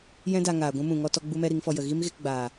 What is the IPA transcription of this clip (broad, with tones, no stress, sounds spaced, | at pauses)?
j ɛ̃˦ d a˧ ŋ aː˨ ɡʷ ũ˧ m ũ˨ ŋ ɔ˧ t ɔ˧ ɡ͡b u˦ m ɛ˦ ɾ i˨˦ ŋ f ɔ˧ j ə˨ ɣ i˦ m ɣ e˧ k ɡ͡b aː˨